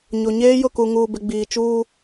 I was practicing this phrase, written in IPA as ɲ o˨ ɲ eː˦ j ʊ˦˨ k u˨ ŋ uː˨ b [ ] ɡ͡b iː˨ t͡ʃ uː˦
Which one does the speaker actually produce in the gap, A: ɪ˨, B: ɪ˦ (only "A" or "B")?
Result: A